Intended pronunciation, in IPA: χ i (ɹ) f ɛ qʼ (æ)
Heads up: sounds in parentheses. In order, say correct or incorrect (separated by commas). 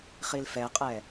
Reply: incorrect, incorrect